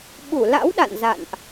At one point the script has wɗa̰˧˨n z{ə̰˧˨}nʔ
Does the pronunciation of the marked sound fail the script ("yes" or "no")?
yes